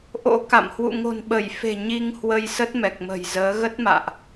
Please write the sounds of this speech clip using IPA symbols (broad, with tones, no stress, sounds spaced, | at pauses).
ʔ o̰˧˥ k a̰˧˨ m h w ṵ˧˨ ŋ o̤˨˩ n ɓ ə˧˩ j f e̤˨˩ ɲ i˧ ŋ h w ə˧ j s ə˦˥ t̚ m ɛ˨˩ k̚ m ə̤˨˩ j z əː˨˦ ɣ ə˦˥ t̚ m a̰ː˧˨ ʔ